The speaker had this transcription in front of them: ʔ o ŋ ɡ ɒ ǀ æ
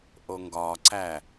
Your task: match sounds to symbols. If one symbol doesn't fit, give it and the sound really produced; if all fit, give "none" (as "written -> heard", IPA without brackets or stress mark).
none